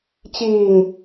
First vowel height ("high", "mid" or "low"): high